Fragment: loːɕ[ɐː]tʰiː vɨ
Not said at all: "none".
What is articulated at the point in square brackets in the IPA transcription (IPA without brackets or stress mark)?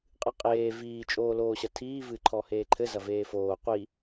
ɐ